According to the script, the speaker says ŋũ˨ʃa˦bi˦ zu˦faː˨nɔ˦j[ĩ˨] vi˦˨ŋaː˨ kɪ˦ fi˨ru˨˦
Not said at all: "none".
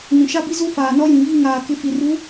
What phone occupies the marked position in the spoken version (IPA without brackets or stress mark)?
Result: ĩ˨